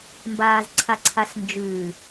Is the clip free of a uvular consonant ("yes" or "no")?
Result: yes